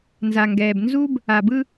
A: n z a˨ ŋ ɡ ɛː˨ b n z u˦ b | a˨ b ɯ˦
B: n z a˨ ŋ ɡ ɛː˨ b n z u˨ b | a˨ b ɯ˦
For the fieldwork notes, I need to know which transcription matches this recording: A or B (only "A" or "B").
A